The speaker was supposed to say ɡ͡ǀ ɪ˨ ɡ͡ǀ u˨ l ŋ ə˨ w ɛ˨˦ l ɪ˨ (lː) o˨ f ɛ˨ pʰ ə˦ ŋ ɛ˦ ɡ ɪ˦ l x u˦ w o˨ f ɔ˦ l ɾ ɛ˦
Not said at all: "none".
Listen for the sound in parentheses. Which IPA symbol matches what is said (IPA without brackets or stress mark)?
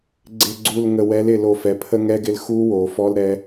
l